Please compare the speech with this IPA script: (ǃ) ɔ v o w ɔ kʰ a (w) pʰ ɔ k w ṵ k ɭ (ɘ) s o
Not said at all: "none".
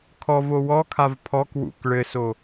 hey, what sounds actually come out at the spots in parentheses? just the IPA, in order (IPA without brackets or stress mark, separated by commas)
kʰ, v, ɘ